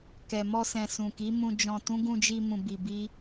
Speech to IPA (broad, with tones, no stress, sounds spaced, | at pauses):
k ɛ˨ m ɔ˧ s ɛ̃˨ s ũ˨ k i˨˦ m ũ˧ d͡ʒ ɔ̃˧ t ũ˦ ɡ ũ˧ d͡ʒ i˧ m ũ˧ b i˧ b i˦